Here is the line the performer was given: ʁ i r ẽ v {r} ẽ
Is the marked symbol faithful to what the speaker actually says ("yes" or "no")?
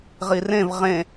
no